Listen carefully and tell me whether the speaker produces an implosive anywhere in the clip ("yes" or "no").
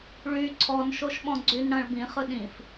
yes